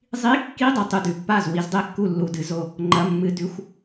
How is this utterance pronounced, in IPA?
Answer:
zˤ i˧˥˧ kː i˧˥˧ dˤ ɨ˥˩ tˤ ʉ˥˩ d ʉ˨ pː a˥˩ z w i˨˩˦ z dˤ e˥˩ kː u˥˩ lː u˨ d ɨ˨˩˦ z o˥˩ | ŋ͡ǃ ɐ˧˥˧ mː ɨ˧˥˧ d ʉ˧˥˧ xʷ

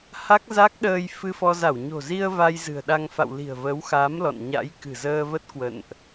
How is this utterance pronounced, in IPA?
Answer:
h a˦˥ k̚ z a˦˥ k̚ ɗ əː˧ j f ɨ˧ f ɔ˧ z a˧˩ w ɲ o̤˨˩ z i˧ ə̯ v a˧ j z ɨ̤˨˩ ə̯ ɗ a˧ ŋ f a̰˧˨ w l i̤˨˩ ə̯ v ə˨˦ w x a˨˦ m l ɔ̰˧˨ n ɲ a̰˧˥ j k ɨ̤˨˩ z əː˧ v ə˦˥ t̚ k w ə̰˧˨ n ʔ

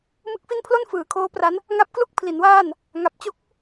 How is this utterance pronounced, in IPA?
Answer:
m ɯ˦˥ k̚ f i˥˩ n pʰ l o˥˩ n f ɯː˩˦ kʰ oː˦˥ p r a˦˥ n | ŋ a˦˥ p̚ k l u˥˩ k̚ pʰ l i˩˦ n w aː˥˩ n | ŋ a˨˩ p̚ t͡ɕ o˥˩ k̚

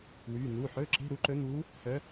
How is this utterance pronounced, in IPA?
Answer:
w yː˩˧˩ n̪ uː˩˧˩ ħ ɵː˧˥˧ ǁ e̤˧˥˧ ɾ u˧˥ ǃ ɵ˧˥ n̪ uː˧˥ | h œ˧˥

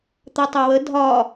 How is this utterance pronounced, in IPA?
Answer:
t̪ ɐ tˤ ɐ w ə dʱ ɒ

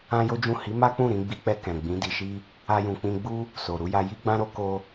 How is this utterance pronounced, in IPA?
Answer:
ã˦ j o˦ d͡ʒ ũ˦˨ h i˨˦ m a˦ k͡p ũ˦˨ ɾ ĩ˧ ɡ͡b i˧ k͡p ɛ˧ k ɛ̃˨ ɡ͡b ĩ˨˦ d i˧ ʃ i˦ | a˧ j ũ˨ k͡p ĩ˧ ɡ͡b u˦ | s o˨ ɾ u˧ j a˧ j i˦ ɡ͡b ã˦ ɾ o˦ k o˦

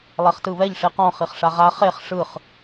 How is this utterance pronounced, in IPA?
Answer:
lˠ ɛ χ t ɯ β ɛ ʎ ʂ i q ɔ̃ χ i χ ʂ a ʁ a χ e χ ʂ ɯ χ

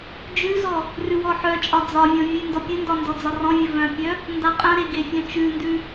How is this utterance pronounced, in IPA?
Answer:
d͡ʒ ʉ z ɔ | r ʉ w ɔ ħ œ t͡ʃʼ ɒ d͡z ɒ vʲ ɔ̃ vʲ ʉ n d ɔ pʲ ɘ n d ɒ n d ɔ d͡z ɒ r ɔ̃ vʲ ɘ v œ̃ pʲ œ | n d a qʼ œ̃ ɾ e ɡ e fʲ œ̃ t͡ʃ ʉ n d ʉ

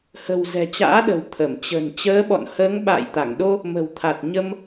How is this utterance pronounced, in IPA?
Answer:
h ə̤˨˩ w z ɛ̤˨˩ t͡ɕ a̰ː˧˥ ɗ ə̤˨˩ w t̪ʰ ə˧˩ m t͡ɕ ə̤˨˩ n t͡ɕ əː˨˦ ɓ ɔ̰˧˨ n h əː˨˦ ŋ ɓ a̰ː˧˨ j t̪ a˧˩ ŋ ɗ o˧ | m ə̤˨˩ w t̪ʰ a˨˩ t̚ ɲ ə˧ m

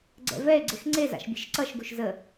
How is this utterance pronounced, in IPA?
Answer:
ɡ͡ǀ ɛ̰ v ɛ e̯ ɡ͡ǀ e x ŋ͡ǀ e z a̰ ʃ bʲ e̤ ʃ ǀ ʌ ʃ ɡ u ʃ z ə

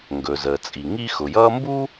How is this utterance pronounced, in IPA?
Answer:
ŋ ɡ ɵ˩ z əː˩ t͡sʼ i˩ ŋ i˥ x ʊ˩ j ʌː˥ m b u˥

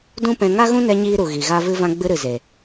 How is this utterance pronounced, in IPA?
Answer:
d ũ˦ p ɛ̃˧ ŋ a˦ ɣ ũ˦ n ɛ˧ ɲ iː˦ ɾ u˨ ɣ i˨ ɣ a˦ v ɨ˦ v ã˦ ɡ͡b ɨ˧ ɾ ɨ˨ z e˨

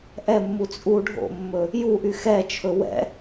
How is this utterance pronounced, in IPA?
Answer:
ʔ ɛ mː u t͡sʼ u ɖʱ o̰ mː ɵ | j u ʔ y x ɛ t͡ʃʰ ɵ w ɛ̰

